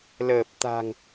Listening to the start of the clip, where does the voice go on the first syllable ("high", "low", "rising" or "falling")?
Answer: low